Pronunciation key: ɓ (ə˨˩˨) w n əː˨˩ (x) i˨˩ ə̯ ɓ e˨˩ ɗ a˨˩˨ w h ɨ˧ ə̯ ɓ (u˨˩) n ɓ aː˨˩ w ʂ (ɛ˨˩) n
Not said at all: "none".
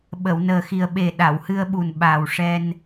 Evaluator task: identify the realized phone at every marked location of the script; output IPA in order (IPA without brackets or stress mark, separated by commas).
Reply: ə˨˩˨, x, u˨˩, ɛ˧